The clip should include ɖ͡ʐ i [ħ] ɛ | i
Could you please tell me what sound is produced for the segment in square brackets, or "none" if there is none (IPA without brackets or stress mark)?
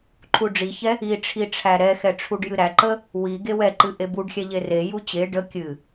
ç